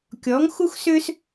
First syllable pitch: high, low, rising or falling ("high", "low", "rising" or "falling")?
rising